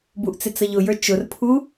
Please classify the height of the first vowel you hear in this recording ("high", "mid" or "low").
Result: high